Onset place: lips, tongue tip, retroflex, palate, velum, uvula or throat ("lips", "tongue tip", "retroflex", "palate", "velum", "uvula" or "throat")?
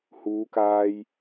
throat